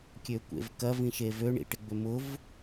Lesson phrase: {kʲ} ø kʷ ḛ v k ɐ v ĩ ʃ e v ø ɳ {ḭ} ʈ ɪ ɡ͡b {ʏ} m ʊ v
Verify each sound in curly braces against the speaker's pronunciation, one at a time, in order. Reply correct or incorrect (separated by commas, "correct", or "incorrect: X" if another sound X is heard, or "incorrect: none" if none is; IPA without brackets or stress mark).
correct, correct, correct